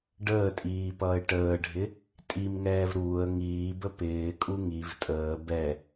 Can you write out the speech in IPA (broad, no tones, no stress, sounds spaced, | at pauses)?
ɖ əː tʼ iː p ʌː ɪ̯ ʈ əː ɖʱ ɪ | tʼ i m ŋ ɛː v ɾ uː ə̯ ŋ iː b ə p ɪː kʼ u ŋ i v tʼ əː b ɛ